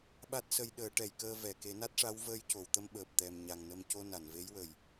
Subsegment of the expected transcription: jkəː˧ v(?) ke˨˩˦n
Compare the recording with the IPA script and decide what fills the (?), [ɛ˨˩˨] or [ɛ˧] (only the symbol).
ɛ˨˩˨